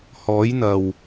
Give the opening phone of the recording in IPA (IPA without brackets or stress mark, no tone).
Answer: h